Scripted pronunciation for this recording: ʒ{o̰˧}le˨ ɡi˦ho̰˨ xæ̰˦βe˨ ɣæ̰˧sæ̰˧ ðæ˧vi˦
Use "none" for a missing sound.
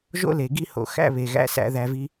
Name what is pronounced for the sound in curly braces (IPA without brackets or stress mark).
o̰˦